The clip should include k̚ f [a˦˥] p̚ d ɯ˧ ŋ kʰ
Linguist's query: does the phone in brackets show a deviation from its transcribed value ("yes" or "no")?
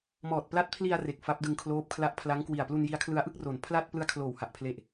no